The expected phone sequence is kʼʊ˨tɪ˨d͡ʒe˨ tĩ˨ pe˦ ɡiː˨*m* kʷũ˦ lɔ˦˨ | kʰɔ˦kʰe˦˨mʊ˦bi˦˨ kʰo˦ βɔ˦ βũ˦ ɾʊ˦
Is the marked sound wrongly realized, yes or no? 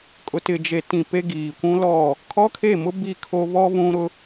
yes